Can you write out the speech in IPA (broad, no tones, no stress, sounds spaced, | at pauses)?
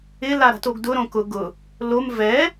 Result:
ɪ l a ɾ a̤ t o ɡ d ʊ ɾ õ k ʊ ɡ ʊ | l o m v ɛ